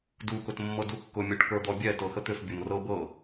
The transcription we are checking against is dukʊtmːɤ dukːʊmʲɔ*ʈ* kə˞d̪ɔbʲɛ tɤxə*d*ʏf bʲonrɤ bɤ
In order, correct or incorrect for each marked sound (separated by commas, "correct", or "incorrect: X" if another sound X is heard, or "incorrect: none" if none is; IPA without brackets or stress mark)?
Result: correct, incorrect: t̪